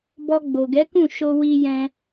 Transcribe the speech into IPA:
b ɔ˧ ɡ͡b o˨ ɡ ɛ˨˦ k ũ˦˨ ʃ o˧ w i˧ j ɛ̃˧

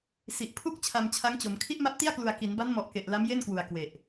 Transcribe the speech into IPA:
s i˨˩ ʔ pʰ u˥˩ k̚ t͡ɕʰ a˧ m t͡ɕʰ a˦˥ ŋ t͡ɕ o˩˦ m kʰ i˦˥ ʔ m a˦˥ p̚ t i˥˩ a̯ k l u˨˩ a̯ k i˩˦ n b a˦˥ n m ɔ˨˩ ʔ k e˨˩ ʔ l a˦˥ m j e˥˩ n k w u˨˩ a̯ k w e˨˩ ʔ

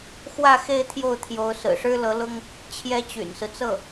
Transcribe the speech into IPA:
x w ä˥˧ x e˥˧ ɪ̯ t̪ʰ j o˥˩ ʊ̯ t̪ʰ j o˧˥ ʊ̯ s ɹ̩˨˩ ʂ ɻ̩˥ l ɤ˧˥ l ʊ˥ ŋ | t͡ɕʰ j ɛ˥ t͡ɕ y̰˨˩ n s ɹ̩˦ t͡s ɤ˥˩

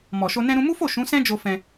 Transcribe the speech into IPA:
m ɔ˨ ʃ o˧ n ɛ̃˧ ɾ ũ˧ m u˦ f o˦˨ ʃ ũ˨˦ s ɛ̃˦ d͡ʒ o˧ f ɛ̃˧

